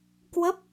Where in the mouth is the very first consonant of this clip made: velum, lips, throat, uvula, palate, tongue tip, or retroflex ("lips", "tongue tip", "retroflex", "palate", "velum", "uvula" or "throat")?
velum